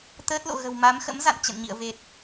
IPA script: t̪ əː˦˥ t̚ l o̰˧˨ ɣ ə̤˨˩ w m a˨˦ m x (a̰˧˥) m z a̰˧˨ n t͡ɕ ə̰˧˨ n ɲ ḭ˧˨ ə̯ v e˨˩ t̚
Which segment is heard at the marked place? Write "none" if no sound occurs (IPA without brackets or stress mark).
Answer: ə̰˧˥